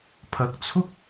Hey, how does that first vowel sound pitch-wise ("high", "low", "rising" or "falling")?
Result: rising